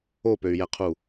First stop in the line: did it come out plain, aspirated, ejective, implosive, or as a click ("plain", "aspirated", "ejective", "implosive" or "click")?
plain